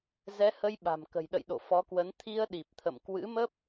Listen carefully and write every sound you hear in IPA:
z ɛ˨˦ h ə˧ j ɓ a̤˨˩ m k ə̤˨˩ j ɗ ə̰˧˨ j ɗ o̰˧˨ f ɔ˨˦ k w ə˨˦ n t̪ʰ i˧ ə̯ ɗ i˨˩ p̚ t̪ʰ ə̰˧˨ m k w ɨ̰˧˥ m ə˦˥ p̚

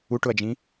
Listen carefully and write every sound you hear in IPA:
u ʈ ʊ ɐ̯ d͡ʒ ĩ

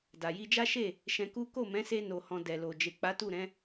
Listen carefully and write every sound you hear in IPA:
d a˨ j i˧ d͡ʒ a˦ ʃ e˦˨ | ʃ ɛ̃˧ k u˦ k o˦˨ m ɛ̃˨˦ s e˧ n o˨ h ɔ̃˨ d ɛ˨ l o˨ d͡ʒ e˨ k͡p a˨˦ t u˦˨ ɾ ɛ̃˨˦

